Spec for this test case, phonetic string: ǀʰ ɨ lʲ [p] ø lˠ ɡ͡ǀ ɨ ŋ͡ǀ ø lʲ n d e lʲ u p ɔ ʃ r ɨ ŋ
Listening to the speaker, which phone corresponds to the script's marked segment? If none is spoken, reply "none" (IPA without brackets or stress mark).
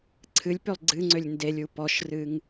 p